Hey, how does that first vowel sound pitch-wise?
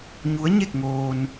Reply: rising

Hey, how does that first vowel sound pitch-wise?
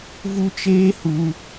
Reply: high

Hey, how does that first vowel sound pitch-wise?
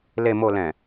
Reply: low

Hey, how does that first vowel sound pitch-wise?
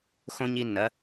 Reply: high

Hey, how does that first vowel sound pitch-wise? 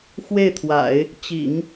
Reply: falling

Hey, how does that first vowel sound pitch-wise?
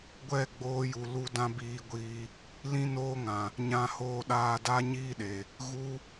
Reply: falling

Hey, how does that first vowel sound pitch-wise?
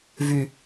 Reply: low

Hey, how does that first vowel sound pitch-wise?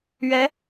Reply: rising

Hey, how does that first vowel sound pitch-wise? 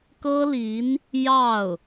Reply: high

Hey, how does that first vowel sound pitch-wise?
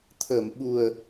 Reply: low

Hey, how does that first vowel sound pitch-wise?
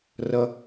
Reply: high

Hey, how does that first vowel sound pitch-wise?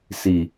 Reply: low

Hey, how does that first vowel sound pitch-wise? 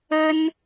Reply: high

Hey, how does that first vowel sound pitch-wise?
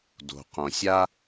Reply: low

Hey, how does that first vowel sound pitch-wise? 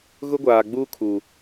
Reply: high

